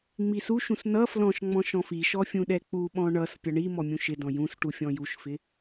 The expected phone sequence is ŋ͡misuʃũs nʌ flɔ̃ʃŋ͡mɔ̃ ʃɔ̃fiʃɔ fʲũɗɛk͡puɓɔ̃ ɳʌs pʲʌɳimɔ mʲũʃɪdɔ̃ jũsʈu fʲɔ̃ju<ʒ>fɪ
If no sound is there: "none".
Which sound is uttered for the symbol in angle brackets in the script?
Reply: ʃ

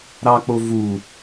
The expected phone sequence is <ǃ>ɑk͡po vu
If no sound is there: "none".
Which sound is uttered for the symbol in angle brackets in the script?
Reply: ɾ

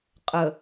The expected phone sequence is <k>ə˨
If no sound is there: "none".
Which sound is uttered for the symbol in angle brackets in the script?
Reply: qʼ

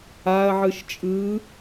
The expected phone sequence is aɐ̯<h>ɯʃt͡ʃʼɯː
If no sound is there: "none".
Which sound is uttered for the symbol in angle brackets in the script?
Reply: ʕ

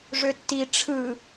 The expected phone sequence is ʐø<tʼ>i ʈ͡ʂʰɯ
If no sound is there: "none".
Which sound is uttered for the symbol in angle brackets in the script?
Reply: tː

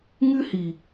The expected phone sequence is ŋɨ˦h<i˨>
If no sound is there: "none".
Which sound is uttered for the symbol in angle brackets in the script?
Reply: i˨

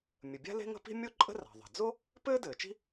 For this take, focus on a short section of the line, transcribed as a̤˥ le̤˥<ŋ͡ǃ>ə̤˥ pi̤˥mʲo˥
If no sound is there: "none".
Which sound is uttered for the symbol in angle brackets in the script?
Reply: ŋ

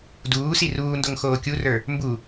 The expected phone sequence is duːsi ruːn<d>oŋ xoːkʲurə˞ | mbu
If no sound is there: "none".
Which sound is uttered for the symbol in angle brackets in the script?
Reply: d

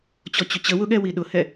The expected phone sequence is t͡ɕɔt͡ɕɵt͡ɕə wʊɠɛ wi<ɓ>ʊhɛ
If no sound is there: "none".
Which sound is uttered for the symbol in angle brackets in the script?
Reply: ɗ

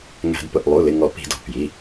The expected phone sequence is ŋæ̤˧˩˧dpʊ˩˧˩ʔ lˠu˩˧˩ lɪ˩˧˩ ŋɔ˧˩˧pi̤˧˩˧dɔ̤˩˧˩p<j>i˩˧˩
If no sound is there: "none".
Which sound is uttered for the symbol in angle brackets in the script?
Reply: j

